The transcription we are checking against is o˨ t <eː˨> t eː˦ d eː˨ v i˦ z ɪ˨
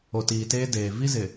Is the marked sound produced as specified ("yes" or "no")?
no